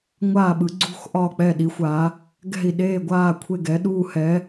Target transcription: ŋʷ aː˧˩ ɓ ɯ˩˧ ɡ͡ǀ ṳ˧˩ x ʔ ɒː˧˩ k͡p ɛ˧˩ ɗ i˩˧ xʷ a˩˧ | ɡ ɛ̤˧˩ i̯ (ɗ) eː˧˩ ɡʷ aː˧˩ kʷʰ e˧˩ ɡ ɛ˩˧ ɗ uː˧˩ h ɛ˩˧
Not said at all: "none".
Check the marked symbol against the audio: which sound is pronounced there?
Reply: ɗ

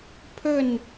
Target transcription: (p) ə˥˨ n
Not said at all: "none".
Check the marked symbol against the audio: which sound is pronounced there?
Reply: pʰ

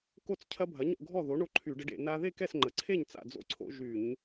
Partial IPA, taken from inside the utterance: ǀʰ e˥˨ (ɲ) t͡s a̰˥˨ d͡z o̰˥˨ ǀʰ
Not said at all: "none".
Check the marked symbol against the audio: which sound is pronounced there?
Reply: ɲ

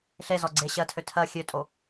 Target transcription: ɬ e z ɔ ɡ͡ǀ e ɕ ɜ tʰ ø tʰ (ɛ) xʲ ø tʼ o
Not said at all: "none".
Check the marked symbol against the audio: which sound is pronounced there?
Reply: ɜ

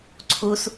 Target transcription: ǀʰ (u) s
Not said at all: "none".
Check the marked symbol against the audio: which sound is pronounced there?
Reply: u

